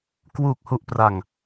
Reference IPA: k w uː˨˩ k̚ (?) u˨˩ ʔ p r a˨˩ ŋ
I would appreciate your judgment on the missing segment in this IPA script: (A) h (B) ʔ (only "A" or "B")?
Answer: A